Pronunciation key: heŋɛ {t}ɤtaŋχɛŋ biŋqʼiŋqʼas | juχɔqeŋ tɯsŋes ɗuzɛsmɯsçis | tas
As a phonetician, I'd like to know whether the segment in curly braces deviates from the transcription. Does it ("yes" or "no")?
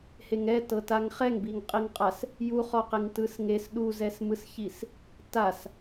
no